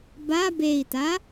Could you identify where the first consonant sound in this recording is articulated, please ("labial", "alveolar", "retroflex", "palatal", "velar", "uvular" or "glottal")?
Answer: labial